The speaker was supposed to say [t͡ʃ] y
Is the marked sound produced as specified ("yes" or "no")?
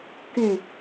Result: no